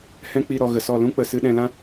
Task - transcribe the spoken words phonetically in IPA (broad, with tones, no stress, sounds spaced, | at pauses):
h ɛ̃˦ k͡p i˧ ɾ ɔ˨ ɣ ə˨ s ɔ˦˨ l ũ˦ k͡p ə˨ s ɨ˧ ɗ ɛ̃˧ l ã˦